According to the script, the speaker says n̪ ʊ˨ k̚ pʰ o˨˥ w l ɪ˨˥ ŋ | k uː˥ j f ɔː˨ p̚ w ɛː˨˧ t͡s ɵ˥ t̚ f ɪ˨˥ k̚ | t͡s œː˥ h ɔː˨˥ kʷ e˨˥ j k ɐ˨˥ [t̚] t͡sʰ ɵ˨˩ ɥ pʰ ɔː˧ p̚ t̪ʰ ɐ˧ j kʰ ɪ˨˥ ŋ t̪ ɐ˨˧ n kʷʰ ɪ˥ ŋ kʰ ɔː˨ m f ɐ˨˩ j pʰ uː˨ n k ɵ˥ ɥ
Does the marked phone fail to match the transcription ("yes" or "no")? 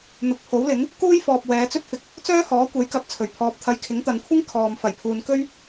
yes